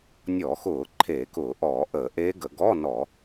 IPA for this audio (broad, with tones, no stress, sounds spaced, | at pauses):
nʲ ɔ˧˩˧ x ʊː˧˩˧ ǃʰ e˧˩˧ k ʊː˧˩˧ ʔ ɔː˧˩˧ ʔ əː˧˩˧ ʔ eː˦˥ ɡ ə˧˩˧ ɡ ɔ˧˥˧ n ɔ˧˩˧